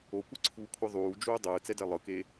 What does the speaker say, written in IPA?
o kʷ ɯ ǀʰ uː kʷʰ ɯ ðˤ uː d͡ʒ uː dˤ ɯː t͡s ɛ d ɛ lˠ ɯ k e

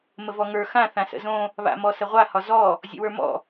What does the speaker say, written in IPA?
m ə v ɔ ŋ ə˞ x ã θ ã s ə̰ z õ | β a̰ m ɔ s ə ʁʷ a h ɒ z ɔ | zʲ ə̰ w ə˞ m ɔ̰

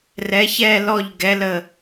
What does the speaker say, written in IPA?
r ɛ˩˧ ç ɛ˧˩ l ɔ˧˩ ʎ ɡ ɛ˩˧ l ə˧˩

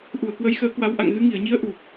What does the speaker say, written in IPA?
ʔ u˧˩ ə̯ k w ə˨˦ j x əː˨˦ k w a˨˦ w ʔ a̰˧˨ ŋ ɣ ɨ˨˦ ŋ i˧˩ ə̯ ɲ i˨˦ ə̯ ʔ u˨˩ p̚

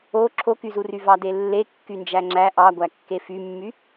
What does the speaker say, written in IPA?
o ǁʰ o k y z u r y v ɑ d e lː e kː y n d͡ʒ æ ŋ͡ǁ æ ʔ ɑ ɡʷ æ kː e f y mː y

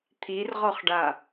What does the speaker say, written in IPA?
t̪ʰ i r ʁ ɔ χ ɖ a

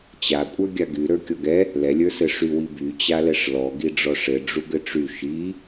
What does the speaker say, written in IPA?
t͡ɕ a kʷʼ ə˞ ɡʲ a ɡ y ɾ ə˞ kʲ ɔ ɡ ɛ | l ɛ lʲ ə˞ s ɘ ʂ y w i b y t͡ɕ a l ɛ ʂ l ɔ ɡ i ɖ͡ʐ ɔ ʂ ɘ ɖ͡ʐ u ɡ ɘ ʈ͡ʂ y ʃ i

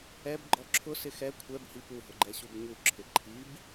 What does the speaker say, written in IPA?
ɛ b ɡ͡ǃ ɔ ǁʰ ʊ s ɪ x ɛ kʷʰ ɛ b h i p u ɦ ʊ ɡ͡ǃ ɛ ɕ u b ɲ u ǁʰ ɪ ǃʰ i b

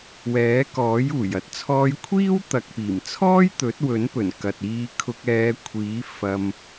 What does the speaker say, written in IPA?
w ɛː˨˥ k ɔː˨˥ j uː˨˩ j ɐ˨˥ t̚ t͡sʰ ɔː˧ j kʷʰ iː˥ w t̪ ɐ˨ k̚ p iː˨˩ m t͡sʰ ɔː˥ j t̪ ɵ˨˥ t̚ w ɵ˨˥ n p ɵ˨˩ n k ɐ˨ t̚ iː˧ kʰ ʊ˧ k̚ ɛː˨˧ kʷʰ iː˨˥ f ɐ˨ m

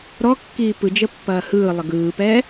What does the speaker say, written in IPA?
ɾ ɔ kː iː p ɯ d͡ʒ ə pː ɐː h ɯː lˠ ə ɡ ɯː p ɛː

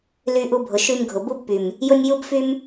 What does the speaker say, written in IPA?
l y˧ ʔ u˧ bʱ ʊ˨ ʃ y˧ m ɡʱ ʊ˨ b u˦ b p y˨ m | j ʊ˦ nʲ j u˦ b f y˦ m

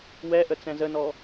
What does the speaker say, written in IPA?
w ɛ ʔ ə t͡s ɛ̃ z ə n ɔ

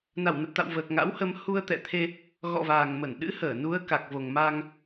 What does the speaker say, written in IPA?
n a˧˩ w n ə˨˩ p̚ t̪ a̰˧˨ w v əː˨˩ k̚ ŋ a̰˧˥ w h ə˧ m h u˧ ə̯ t̪ ɛ̰˧˨ t̪ʰ e˧ | ɣ ɔ̰˧˨ v aː˨˩ ŋ m ə˧˩ n ɗ ɨ̰˧˥ h əː˧˩ n u˨˦ ə̯ k a˨˩ k̚ v o˨˩ ŋ m aː˧ ŋ

